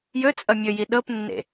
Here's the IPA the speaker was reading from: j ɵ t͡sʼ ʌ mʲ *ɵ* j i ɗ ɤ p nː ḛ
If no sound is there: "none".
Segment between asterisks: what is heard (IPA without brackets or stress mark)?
ɵ